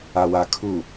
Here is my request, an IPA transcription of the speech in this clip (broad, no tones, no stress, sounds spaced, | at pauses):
a w a kʰ u